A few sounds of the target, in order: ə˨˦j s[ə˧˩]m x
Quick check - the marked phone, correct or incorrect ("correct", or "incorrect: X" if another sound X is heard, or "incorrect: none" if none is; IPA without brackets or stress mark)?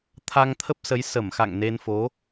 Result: correct